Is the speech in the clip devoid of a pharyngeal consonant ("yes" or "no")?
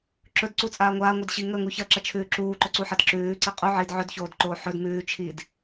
no